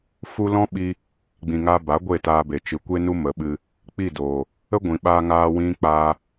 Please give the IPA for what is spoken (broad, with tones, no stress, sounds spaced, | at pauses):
f u˦ l ɔ̃˦ ɓ i˧ | ɡ͡b ĩ˨ ŋ a˧ b a˨˦ ɡʷ e˦˨ t aː˧ b e˨ t͡ʃ ɨ˨˦ kʷ e˦ n u˦ m ə˨˦ ɓ ɨ˧ | k͡p i˦˨ d oː˨ | ə˦ ɡʷ ĩ˨ ɓ aː˧ ŋ aː˧ w ĩ˦ k͡p aː˦